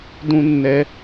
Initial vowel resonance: nasal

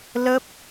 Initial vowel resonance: oral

